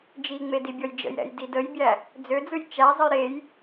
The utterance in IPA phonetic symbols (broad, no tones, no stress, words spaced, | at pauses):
d͡ʒiŋ͡me dibʲɔjd͡ʒə̰jɾɛ̰j didəjbʲæ | d͡zød͡zɯj t͡ʃæzˤəj ɾej